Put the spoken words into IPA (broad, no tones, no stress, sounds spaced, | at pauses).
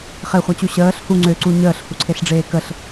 χ e χʷ a t͡ɕ u ɕ əː ɬ h u ŋ͡ǀ ø ǀ u ɲ əː ɬ h u ǀʰ e ɬ ɖ͡ʐ eː k ə ɬ